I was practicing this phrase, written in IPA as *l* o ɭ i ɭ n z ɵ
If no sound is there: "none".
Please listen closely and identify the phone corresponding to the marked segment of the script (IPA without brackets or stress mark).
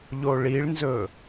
ʎ